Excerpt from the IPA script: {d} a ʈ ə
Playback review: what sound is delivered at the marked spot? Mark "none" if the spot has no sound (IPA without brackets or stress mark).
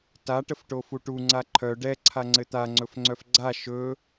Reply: t